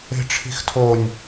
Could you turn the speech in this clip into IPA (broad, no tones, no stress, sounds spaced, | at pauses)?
e̤ ʈ͡ʂʰ i̤ x tʰ o nʲ